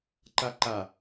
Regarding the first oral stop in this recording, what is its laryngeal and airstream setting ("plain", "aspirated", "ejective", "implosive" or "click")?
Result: click